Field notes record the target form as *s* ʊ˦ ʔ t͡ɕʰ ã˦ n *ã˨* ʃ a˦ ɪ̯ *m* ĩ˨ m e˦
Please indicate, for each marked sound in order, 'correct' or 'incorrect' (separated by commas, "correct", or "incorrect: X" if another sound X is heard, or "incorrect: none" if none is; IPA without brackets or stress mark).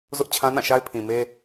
incorrect: z, incorrect: ã˦˨, incorrect: pʰ